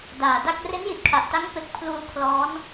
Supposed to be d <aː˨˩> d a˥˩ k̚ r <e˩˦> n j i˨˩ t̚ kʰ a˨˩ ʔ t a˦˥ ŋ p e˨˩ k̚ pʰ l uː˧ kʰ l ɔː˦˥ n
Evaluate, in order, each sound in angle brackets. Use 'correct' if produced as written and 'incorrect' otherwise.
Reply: correct, incorrect: e˦˥

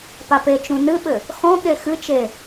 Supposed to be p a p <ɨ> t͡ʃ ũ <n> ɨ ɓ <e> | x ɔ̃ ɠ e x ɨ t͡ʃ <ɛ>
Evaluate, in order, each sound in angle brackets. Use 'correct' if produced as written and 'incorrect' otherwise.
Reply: incorrect: e, correct, incorrect: ɘ, incorrect: e

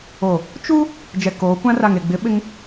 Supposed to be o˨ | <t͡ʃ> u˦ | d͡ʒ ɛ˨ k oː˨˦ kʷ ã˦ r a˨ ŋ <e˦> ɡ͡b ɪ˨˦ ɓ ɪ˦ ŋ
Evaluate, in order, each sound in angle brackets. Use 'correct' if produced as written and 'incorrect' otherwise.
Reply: correct, incorrect: e˨

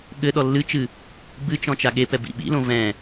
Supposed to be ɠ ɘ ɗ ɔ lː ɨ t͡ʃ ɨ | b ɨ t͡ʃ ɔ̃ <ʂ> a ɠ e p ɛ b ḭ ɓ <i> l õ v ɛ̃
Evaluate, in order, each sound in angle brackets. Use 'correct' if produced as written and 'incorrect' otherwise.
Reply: incorrect: t͡ʃ, incorrect: ḭ

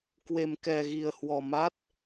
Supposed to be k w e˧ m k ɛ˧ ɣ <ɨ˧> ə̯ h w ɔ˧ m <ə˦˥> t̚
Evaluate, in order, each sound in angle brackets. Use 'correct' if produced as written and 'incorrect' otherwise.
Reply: incorrect: i˧, incorrect: a˦˥

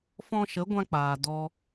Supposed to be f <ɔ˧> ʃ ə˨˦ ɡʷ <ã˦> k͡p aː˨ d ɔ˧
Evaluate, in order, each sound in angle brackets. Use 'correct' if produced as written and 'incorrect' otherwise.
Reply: incorrect: ɔ̃˧, correct

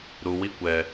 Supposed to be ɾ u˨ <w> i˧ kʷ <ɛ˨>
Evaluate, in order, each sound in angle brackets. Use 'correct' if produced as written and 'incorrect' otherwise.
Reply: correct, correct

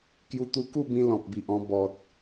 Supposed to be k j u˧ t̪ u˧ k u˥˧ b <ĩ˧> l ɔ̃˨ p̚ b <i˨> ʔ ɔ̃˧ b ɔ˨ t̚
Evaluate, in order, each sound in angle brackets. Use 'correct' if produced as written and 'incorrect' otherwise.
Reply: correct, correct

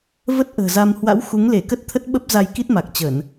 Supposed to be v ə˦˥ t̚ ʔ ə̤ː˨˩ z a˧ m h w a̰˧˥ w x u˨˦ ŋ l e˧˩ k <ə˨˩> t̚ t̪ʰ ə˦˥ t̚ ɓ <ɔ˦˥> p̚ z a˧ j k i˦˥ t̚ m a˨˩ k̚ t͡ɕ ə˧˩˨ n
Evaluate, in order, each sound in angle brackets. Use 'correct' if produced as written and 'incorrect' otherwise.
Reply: incorrect: ə˦˥, incorrect: ə˦˥

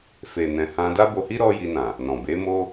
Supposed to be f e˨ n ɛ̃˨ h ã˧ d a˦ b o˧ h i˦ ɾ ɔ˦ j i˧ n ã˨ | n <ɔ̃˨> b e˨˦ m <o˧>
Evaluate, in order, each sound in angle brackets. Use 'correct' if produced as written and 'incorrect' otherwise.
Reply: correct, incorrect: o˦

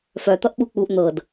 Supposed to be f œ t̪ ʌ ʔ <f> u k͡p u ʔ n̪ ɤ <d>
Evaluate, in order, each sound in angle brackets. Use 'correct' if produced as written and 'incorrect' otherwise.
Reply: incorrect: ɓ, correct

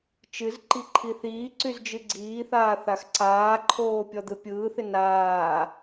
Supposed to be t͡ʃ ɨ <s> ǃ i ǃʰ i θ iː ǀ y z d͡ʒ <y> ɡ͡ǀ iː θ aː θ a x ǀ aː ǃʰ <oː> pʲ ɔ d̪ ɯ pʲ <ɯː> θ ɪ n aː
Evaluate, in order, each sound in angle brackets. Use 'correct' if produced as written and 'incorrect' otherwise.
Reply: incorrect: z, incorrect: ɨ, correct, correct

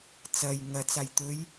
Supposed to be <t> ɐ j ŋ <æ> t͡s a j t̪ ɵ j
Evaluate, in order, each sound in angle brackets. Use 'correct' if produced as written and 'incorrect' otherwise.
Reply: incorrect: t͡s, incorrect: ɐ

